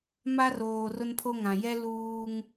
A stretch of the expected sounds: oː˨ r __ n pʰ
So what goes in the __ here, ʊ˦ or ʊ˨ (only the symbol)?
ʊ˦